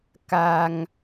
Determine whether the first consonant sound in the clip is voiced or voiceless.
voiceless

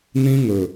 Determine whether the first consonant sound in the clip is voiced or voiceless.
voiced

